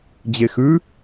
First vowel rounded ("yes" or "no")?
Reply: no